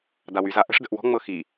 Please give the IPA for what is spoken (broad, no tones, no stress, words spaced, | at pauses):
dawyza ʔə̤ʂdə̤ʔ wɔ̤ŋ͡mɤ xi